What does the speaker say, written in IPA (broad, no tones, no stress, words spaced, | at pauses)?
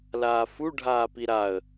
laːfu ɖʱaːpiɾaə̯